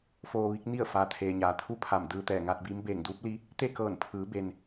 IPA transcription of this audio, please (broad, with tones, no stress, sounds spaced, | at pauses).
f oː˧ ʋ i˧˥ k̚ n i˥˨ ə̯ f aː˩ t̪ʰ eː˩ ɲ aː˩ t̪ʰ u˥˨ pʰ a˧˩ m d ɯː˧ t̪ ɛː˧˩ ŋ aː˧ t̚ b iː˧˥ m b eː˧˩ ŋ d uː˧˥ p̚ l i˧˥ | t̪ e˥˨ k ɤː˧˩ n pʰ ɯː˩˧ b e˩ n